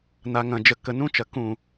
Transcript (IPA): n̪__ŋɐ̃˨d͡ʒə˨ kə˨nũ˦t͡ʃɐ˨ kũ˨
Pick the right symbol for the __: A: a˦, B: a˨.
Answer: B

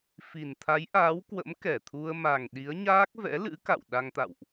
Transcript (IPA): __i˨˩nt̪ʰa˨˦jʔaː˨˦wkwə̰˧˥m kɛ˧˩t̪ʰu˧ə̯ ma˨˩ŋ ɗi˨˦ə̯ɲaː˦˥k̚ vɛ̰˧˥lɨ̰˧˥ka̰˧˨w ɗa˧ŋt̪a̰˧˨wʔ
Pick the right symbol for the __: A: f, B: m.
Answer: A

